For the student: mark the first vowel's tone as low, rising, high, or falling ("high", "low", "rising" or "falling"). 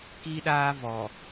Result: high